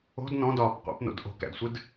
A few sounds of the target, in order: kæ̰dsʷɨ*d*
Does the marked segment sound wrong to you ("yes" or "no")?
no